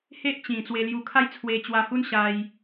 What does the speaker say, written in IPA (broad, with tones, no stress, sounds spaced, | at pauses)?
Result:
h e˦ ʔ t͡ɕ ĩ˨˩ t͡s w e˧ l j u˧ kʰ a˦ j t͡sʰ w e˧ t͡ɕ w a˧ h u˦ n ɕ a˧ j